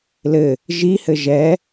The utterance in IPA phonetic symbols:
l ɘ | ʒ i h ɘ ʒ ɛ

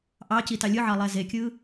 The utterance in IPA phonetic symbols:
ʔ ɑ c i t ɑ lʲ ɯ ʕ ɑ lˠ æ z e kʲ ɯ

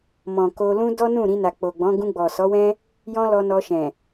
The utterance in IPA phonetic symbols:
m ɔ̃˨ k o˧ l ũ˧ d ɔ˦ n ũ˦˨ ɾ ĩ˧ n a˨ k͡p o˨ ɡ͡b ɔ̃˨˦ ɡ ũ˧ ɡ͡b ɔ˨ s ɔ˨˦ w ɛ̃˦ | j ɔ̃˦ l ɔ˧ n ɔ˧ ʃ ɛ̃˨

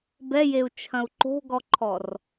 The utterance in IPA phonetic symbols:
b ɛ j e u̯ t͡ʃʰ ɐ̃ u̯ ǃ o̤ ɡ ɔ ǃʰ ɔ r

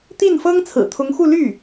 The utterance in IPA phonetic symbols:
t̪ i˥˩ n f ɤ˥ ŋ t͡sʰ ɹ̩˨˩ t̪ʰ ʊ˧˥ ŋ x u˥˧ l y˥˩

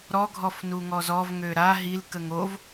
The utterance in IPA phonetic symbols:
ɾ ɔ ɡʱ ɔ f n u ŋ ɔ z ɔ v ŋ ø ɾ a ɦ i l k ə ŋ o v

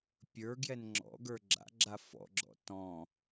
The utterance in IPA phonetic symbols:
pʲ ə˞ ɡ j ɛ n ŋ͡ǁ ɔ̰ ɡ ə˞ ɡ͡ǁ a̰ ɡ͡ǁ a f ɔ̰ ɡ͡ǁ ɔ̰ t ɔ̃

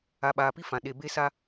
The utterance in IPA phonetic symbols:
a˨ ɓ aː˨ p i˦ f ã˨ ɗ e˨ b e˦ s a˦

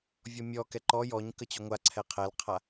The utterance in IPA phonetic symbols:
vʲ ɔ mʲ ɔ k ɛ ǃ ɔ j ɔ ɲ k ə t͡ɕ y ŋʷ a ǀʰ ɛ qʰ ɛ l qʰ a

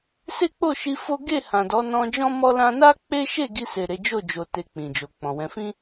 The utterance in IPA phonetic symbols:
s e˦ k͡p o˦˨ ʃ i˧ f o˦ ɡ e˦˨ h ã˨ d ɔ˨˦ n ɔ̃˧ d͡ʒ ɔ̃˦ m ɔ˦ l ã˧ n a˦ k͡p e˦ ʃ e˦˨ ɡ i˧ s e˨ ɾ e˨˦ d͡ʒ o˦˨ d͡ʒ o˨ t e˨ k͡p ĩ˨ d͡ʒ o˨ k͡p ɔ̃˨ w ɛ̃˧ f ĩ˦

